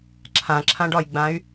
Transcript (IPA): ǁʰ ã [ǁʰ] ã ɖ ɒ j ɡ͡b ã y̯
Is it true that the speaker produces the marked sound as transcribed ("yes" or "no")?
yes